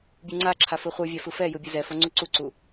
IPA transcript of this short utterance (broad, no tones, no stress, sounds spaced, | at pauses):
bʲ u ŋ͡ǀ a ǁʰ a f ɯ χʷ ɯ vʲ a f ɯ f ɛ j ɯ bʲ ɯ z ɛ f o ŋ͡ǀ u ǀ u ǀ u